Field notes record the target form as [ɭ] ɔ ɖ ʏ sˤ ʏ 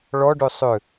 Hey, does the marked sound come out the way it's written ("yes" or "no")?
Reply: yes